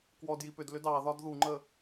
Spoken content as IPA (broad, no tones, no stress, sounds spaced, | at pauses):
k w ɔ d j i p ʏ d l ʏ d ɑ ð ɒ d ð u ŋ͡ǃ ə